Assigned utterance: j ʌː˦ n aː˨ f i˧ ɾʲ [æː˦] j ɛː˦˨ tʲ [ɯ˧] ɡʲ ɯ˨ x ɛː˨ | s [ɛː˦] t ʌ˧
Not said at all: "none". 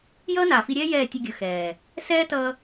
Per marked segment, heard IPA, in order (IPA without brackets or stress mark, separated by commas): ɛː˦, ɯ˧, ɛː˦